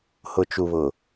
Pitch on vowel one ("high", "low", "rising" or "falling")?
low